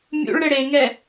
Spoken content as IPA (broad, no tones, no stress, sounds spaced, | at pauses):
mʲ ṵ ɭ ɽ ɘ ɽ e ŋ ɛ